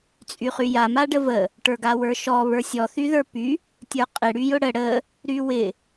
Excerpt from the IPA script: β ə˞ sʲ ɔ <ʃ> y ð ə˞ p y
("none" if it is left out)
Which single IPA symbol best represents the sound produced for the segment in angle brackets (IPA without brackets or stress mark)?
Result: θ